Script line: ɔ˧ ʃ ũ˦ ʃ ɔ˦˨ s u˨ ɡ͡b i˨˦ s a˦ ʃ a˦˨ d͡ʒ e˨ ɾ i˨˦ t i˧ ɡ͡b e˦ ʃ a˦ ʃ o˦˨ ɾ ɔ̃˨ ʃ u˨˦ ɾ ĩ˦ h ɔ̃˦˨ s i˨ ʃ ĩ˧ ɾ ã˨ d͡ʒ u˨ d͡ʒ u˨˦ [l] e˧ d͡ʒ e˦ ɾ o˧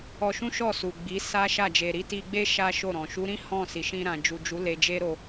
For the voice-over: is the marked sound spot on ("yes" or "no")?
yes